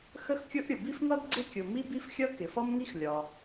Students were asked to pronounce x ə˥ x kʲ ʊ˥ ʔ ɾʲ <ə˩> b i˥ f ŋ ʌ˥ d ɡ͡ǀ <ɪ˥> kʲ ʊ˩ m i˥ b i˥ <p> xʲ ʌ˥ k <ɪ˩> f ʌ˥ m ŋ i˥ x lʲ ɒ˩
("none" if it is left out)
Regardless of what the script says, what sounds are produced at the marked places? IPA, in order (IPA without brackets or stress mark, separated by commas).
ʊ˩, ɪ˥, f, ɪ˩